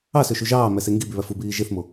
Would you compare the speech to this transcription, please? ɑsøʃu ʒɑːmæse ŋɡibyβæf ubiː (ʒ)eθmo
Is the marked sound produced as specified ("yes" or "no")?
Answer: yes